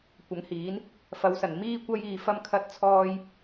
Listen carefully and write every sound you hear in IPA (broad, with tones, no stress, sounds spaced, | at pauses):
kʷ ɐ˨˥ ŋ h iː˨˥ n | f ɐ˨˧ w s ɐ˨˩ n m iː˥ kʷ ɐ˥ j iː˧ f ɐ˥ m kʰ ɐ˥ t̚ t͡sʰ ɔː˥ j